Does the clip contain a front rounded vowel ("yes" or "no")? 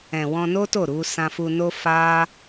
no